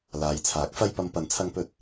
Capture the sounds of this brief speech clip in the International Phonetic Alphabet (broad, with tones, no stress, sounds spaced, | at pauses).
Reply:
l aː˨ j t͡sʰ aː˨˥ k̚ f ɐ˧ j p ɐ˨˧ m p ɐ˨ n t͡sʰ ɐ˧ ŋ p ɵ˧ t̚